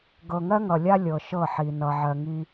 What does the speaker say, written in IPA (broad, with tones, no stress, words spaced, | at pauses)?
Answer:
ɡɤ˨ŋɜ˦ŋʌ˨lʲa˦ lʲɤ˨ʃɤ˦˨ħi˨ nʌ˨ʕɜ˨ ŋi˦